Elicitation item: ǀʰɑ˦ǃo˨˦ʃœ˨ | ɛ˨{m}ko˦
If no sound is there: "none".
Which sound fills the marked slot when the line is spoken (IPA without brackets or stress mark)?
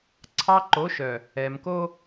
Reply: m